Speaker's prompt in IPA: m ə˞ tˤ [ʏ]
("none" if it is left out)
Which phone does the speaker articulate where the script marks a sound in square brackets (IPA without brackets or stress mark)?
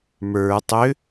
ʏ